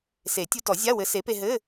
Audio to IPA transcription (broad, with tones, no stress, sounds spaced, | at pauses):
s e˨˩˦ tʲ u˧ t ɔ˨˩˦ zʲ a˧˥˧ w ɘ˨˥ s e˨˥ p e˧ ɦ ɘ˧˥˧